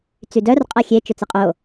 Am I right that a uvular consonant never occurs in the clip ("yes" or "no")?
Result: no